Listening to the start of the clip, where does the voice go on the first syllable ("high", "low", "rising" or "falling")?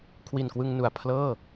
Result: low